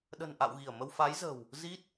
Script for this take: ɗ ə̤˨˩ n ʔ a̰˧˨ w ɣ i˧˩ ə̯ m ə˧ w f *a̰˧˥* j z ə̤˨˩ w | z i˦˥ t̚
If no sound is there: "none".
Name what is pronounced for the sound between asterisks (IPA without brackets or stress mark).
a˨˦